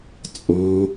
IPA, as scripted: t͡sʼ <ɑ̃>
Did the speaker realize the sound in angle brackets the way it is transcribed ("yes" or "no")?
yes